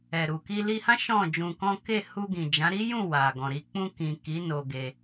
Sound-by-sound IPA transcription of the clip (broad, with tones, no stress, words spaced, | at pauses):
ɛ˨ɾu˨ ki˧li˧hã˦ ʃɔ̃˦˨d͡ʒũ˧kɔ̃˦ ke˦˨ hu˧ ɡĩ˨d͡ʒã˨˦ɾi˦jũ˦˨ wa˨ɡɔ̃˨ɾi˧ k͡pũ˧kĩ˨ ki˨˦ no˧ɡe˧